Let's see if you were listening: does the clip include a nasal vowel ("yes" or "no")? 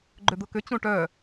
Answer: yes